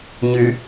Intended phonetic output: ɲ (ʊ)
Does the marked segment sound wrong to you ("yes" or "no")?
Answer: yes